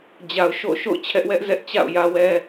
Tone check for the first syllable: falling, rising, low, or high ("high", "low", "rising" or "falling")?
low